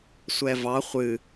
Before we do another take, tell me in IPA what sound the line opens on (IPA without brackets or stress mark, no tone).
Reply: sʷ